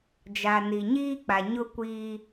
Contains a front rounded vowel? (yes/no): no